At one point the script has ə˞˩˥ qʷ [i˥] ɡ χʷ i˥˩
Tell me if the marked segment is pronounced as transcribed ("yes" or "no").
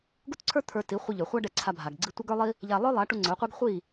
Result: yes